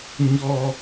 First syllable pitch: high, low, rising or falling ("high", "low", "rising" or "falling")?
high